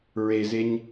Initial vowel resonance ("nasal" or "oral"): oral